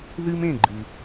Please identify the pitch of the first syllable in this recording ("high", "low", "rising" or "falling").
high